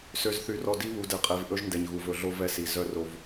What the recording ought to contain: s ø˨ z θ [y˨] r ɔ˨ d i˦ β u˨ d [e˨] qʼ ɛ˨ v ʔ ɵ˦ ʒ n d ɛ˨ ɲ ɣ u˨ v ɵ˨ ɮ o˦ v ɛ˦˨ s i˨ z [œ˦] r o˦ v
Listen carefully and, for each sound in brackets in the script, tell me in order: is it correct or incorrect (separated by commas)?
correct, incorrect, correct